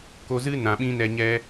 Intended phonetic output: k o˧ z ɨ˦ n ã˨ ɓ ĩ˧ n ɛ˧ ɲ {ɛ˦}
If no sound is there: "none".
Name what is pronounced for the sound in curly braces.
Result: ɛ˦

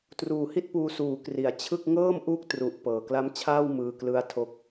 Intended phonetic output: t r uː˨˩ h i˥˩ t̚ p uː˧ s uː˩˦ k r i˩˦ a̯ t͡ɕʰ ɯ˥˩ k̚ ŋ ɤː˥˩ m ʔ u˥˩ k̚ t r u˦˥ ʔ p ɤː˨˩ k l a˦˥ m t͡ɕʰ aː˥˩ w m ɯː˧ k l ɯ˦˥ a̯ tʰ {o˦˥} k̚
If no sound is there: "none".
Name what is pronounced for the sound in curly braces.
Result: o˦˥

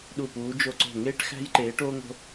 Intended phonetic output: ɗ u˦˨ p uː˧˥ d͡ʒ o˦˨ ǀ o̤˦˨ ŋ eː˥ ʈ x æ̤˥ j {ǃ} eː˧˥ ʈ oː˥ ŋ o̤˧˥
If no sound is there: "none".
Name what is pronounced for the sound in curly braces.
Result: ǃ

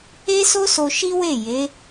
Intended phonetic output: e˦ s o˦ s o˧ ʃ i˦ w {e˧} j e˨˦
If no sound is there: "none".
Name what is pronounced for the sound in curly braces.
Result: e˦˨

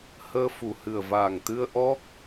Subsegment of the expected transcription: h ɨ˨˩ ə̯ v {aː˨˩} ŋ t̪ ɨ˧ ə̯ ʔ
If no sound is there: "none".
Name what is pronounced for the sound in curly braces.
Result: aː˨˩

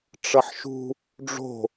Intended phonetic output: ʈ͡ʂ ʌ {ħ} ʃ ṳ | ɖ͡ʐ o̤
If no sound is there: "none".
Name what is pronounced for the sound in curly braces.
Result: ħ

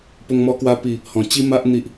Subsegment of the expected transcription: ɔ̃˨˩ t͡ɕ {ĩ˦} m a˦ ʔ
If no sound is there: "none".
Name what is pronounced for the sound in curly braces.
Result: i˦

